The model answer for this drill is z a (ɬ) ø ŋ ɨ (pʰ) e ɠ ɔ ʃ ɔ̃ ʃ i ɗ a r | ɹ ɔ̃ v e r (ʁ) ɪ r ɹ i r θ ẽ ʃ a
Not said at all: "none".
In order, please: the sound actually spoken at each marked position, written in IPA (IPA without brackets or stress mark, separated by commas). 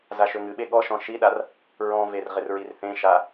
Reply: ʃ, ɓ, ʁ